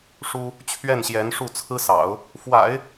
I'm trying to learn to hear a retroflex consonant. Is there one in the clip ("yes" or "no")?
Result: yes